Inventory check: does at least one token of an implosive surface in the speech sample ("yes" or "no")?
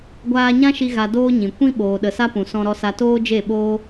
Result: yes